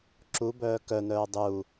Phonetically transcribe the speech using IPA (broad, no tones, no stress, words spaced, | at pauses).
ǁubœː kœnœː dˤu